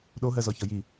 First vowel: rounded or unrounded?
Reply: rounded